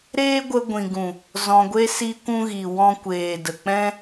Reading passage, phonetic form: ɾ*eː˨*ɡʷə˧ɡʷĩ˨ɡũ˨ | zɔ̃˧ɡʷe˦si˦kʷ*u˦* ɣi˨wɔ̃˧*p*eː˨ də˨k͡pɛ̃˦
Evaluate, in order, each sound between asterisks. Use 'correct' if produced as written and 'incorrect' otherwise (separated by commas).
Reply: incorrect, incorrect, incorrect